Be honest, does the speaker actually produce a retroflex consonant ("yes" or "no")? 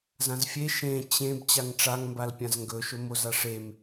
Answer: yes